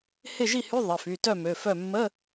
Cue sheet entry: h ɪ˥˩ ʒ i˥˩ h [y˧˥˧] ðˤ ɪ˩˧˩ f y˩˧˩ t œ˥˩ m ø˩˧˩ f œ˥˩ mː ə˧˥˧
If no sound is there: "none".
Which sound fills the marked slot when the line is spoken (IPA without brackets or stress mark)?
y˧˥˧